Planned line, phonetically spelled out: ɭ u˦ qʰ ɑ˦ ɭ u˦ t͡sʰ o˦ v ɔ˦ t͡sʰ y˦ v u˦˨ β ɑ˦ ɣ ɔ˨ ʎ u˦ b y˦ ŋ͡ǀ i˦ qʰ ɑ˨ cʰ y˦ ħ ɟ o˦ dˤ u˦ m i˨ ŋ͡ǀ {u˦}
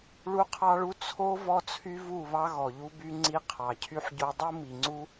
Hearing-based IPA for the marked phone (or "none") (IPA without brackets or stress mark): u˦